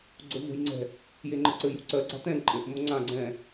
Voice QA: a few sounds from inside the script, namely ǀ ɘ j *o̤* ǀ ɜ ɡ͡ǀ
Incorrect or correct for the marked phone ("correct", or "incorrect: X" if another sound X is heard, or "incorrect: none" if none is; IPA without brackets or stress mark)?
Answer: correct